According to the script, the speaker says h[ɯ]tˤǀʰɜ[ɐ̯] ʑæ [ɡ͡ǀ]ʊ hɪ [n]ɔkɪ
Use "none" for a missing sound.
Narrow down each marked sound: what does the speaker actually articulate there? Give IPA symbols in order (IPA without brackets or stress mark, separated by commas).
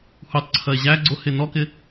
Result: u, e̯, ɡ͡ǀ, n